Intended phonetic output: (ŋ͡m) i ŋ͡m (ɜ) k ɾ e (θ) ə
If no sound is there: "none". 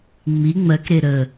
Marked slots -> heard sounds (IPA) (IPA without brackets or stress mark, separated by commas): ŋ͡m, ɜ, ɾ